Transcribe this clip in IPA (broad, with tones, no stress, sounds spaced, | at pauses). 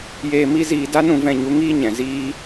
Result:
j eː˧ m i˦ z iː˧ d a˦ n ũ˧ v ɛ̃˧ ɲ u˨˦ ŋ iː˦ ɲ ɛ̃˨ z iː˧